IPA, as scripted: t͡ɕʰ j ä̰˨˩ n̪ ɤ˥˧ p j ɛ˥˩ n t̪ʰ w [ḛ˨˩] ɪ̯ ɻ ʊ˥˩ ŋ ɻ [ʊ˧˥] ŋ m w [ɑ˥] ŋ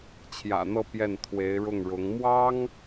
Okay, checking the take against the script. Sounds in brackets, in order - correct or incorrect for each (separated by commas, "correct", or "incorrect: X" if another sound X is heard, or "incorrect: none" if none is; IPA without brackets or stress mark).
incorrect: e˧˥, correct, correct